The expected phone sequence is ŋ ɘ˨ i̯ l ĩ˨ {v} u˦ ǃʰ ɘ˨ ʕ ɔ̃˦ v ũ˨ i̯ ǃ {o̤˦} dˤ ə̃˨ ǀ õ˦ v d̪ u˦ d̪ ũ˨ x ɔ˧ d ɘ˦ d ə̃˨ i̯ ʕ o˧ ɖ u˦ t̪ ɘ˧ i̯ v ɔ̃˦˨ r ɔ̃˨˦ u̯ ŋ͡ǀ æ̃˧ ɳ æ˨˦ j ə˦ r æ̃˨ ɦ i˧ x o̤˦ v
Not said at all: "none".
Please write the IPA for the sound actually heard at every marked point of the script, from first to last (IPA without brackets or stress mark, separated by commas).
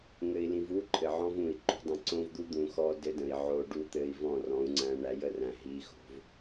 v, o̤˦